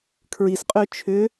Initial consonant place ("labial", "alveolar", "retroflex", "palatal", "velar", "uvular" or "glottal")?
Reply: velar